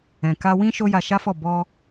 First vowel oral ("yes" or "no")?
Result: no